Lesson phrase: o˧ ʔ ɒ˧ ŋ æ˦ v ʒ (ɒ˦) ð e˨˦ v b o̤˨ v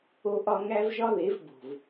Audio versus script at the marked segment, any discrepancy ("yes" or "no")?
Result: no